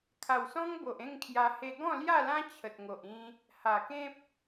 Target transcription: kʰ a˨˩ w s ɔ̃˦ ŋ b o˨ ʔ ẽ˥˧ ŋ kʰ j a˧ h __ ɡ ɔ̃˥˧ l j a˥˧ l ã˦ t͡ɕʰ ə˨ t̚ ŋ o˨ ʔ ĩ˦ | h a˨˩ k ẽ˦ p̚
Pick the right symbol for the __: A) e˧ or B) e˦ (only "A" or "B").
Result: A